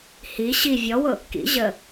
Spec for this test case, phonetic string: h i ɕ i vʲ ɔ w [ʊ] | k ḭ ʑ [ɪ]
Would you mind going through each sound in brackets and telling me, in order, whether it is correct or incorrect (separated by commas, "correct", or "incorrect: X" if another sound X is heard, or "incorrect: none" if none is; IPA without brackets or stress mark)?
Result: correct, incorrect: ə